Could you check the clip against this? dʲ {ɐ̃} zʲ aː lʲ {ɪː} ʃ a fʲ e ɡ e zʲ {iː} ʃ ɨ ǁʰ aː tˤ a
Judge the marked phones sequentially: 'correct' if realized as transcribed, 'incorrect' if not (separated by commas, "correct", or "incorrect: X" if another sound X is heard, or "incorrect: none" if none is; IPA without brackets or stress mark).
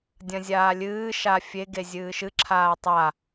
correct, incorrect: ɨː, incorrect: ɨː